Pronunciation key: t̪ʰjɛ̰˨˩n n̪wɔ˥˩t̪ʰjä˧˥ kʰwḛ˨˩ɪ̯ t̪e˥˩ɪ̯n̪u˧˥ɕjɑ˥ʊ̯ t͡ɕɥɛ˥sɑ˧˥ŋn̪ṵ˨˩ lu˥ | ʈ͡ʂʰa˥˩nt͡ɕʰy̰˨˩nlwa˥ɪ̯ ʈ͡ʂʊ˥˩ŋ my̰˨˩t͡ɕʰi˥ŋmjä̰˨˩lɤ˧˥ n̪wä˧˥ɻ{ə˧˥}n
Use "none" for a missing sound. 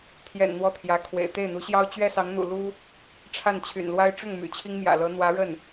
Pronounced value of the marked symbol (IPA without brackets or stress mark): ə˥˩